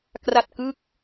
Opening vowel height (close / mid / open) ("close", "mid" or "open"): open